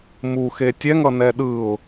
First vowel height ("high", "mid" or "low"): high